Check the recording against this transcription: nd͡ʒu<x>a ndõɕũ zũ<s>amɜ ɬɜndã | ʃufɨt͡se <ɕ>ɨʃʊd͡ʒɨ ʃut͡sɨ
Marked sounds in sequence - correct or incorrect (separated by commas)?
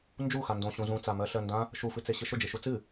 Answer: correct, incorrect, correct